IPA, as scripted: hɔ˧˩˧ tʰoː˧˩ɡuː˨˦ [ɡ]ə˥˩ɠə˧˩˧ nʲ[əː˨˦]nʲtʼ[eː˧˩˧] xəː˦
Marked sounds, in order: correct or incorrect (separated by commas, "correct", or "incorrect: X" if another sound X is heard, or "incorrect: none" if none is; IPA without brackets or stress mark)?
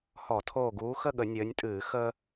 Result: incorrect: x, correct, incorrect: ɨː˧˩˧